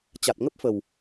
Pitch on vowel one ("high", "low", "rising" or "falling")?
low